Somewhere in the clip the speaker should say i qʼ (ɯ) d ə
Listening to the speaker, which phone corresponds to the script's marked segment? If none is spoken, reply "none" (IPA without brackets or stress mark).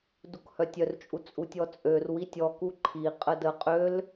ə